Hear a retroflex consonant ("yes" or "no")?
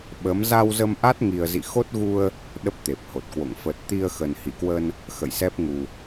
no